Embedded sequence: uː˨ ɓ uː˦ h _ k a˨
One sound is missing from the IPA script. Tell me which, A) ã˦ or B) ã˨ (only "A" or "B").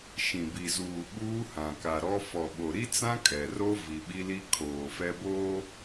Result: B